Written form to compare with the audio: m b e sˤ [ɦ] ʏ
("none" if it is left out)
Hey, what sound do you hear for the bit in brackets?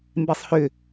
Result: h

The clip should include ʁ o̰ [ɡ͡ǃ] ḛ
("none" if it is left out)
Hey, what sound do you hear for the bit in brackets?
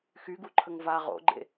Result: ɡ͡ǃ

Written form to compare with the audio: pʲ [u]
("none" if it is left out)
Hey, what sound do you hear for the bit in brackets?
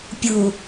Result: u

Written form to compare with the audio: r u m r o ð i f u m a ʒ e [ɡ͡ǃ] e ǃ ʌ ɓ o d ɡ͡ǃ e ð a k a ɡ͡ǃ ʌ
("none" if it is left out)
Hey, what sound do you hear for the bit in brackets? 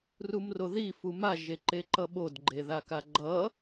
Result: ǃ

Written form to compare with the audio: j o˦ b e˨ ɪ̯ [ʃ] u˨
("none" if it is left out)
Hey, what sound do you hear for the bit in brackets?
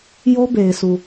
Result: s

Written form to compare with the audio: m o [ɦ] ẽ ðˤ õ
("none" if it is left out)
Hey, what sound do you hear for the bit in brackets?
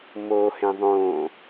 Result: h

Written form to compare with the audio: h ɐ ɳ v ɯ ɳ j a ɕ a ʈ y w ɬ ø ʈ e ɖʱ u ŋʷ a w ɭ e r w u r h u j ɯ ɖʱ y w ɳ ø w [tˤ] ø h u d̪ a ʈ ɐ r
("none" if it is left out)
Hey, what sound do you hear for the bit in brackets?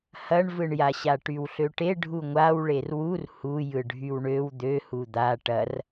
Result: d̪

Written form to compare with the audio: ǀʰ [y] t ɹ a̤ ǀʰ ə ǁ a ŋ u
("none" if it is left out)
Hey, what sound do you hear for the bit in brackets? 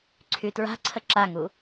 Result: y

